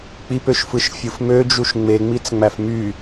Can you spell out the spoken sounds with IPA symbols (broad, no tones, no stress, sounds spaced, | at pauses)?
k͡p i p ø ʃ f ɯ ʃ fʲ ɯ f m ø d͡ʒ u ʃ ŋ͡m e ŋ͡m i t͡s ŋ͡m æ f m y